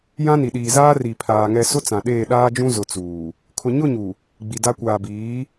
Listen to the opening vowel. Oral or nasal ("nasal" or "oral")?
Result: nasal